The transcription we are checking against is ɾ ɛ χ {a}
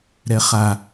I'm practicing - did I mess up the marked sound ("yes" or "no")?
no